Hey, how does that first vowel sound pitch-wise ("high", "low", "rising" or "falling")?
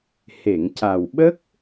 low